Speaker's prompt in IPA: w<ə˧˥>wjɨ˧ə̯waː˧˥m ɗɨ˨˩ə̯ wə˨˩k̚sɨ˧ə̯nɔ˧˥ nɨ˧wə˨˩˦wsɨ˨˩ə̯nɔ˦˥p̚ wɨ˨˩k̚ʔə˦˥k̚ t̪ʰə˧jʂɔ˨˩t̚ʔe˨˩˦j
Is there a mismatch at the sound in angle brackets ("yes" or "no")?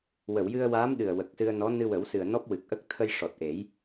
yes